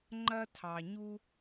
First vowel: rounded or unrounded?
unrounded